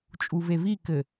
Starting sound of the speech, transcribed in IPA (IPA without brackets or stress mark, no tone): t͡ʃʼ